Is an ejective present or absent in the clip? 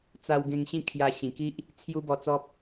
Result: absent